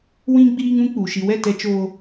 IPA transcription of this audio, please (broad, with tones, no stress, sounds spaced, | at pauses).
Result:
w ĩ˦ ɡ͡b iː˦ ŋ ũ˦ k͡p u˨ ʃ i˨ w ɛ˦˨ t ɛ˦ t͡ʃ oː˦